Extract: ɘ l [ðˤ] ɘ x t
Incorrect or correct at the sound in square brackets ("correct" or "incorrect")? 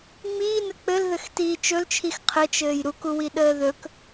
incorrect